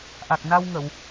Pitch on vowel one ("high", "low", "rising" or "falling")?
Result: low